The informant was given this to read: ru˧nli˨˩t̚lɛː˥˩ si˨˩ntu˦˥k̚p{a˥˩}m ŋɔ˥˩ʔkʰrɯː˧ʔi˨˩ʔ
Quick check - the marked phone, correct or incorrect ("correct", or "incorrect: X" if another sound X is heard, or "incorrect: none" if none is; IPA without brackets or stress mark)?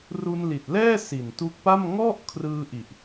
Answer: correct